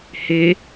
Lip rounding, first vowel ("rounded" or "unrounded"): unrounded